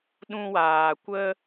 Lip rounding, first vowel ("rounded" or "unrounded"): rounded